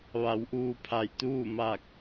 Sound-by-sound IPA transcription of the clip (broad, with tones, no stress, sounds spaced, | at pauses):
ʋ a˩˧ w ʔ uː˧ pʰ a˧˩ j t̪ uː˥˨ m a˧˩ k̚